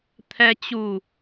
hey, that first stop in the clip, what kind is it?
aspirated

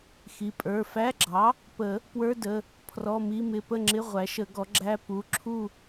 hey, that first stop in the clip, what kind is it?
ejective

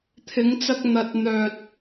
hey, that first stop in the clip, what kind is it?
aspirated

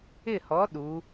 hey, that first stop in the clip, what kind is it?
implosive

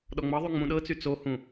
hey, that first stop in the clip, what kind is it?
implosive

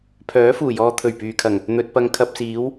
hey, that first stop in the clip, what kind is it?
aspirated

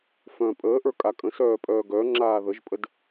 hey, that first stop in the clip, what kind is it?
ejective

